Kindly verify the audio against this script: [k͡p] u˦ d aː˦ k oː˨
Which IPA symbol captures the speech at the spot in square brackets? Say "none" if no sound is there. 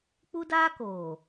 k͡p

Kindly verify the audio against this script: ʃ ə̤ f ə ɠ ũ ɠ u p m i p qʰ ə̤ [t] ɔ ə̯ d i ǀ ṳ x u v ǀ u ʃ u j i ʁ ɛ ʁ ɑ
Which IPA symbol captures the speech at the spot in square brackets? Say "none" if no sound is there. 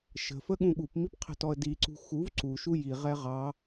t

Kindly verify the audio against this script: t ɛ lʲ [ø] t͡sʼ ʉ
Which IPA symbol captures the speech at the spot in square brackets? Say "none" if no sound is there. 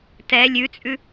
ʉ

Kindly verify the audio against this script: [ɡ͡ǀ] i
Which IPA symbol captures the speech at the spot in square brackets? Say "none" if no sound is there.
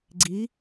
ɡ͡ǀ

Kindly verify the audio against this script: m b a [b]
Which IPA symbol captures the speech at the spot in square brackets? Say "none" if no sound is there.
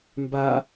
none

